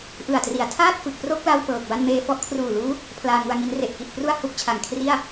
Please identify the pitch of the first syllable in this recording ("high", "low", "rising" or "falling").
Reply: low